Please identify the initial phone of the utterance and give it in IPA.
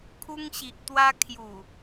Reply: kʰ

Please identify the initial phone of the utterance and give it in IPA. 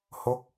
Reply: h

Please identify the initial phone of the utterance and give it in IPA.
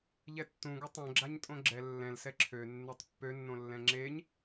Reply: ʎ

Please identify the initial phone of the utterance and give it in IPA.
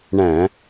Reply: ɳ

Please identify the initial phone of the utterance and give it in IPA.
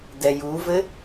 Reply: d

